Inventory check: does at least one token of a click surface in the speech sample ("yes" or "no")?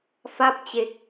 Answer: no